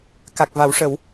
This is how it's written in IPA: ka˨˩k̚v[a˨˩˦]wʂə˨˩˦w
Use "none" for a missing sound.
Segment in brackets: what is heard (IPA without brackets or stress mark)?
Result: a˨˩˦